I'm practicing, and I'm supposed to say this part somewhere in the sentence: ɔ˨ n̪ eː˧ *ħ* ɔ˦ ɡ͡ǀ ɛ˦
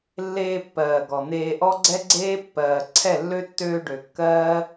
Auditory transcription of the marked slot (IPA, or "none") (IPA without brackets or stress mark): ʔ